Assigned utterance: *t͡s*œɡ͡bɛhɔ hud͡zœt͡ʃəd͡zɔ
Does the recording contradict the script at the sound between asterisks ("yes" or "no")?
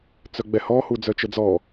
no